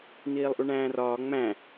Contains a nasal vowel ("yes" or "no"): yes